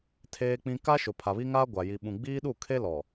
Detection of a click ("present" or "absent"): absent